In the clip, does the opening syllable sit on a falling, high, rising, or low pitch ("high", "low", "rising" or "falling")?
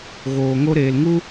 low